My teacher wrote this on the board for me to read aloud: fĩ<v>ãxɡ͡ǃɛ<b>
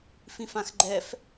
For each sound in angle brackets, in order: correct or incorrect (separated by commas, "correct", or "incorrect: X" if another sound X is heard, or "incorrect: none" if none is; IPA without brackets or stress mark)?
incorrect: f, incorrect: f